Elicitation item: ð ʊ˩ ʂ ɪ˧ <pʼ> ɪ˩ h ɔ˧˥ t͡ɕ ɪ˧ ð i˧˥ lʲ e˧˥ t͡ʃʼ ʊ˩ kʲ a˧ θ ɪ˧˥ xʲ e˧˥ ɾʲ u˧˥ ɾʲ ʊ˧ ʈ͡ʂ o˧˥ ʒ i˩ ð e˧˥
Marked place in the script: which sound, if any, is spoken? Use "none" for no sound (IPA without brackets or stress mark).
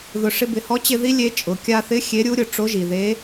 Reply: b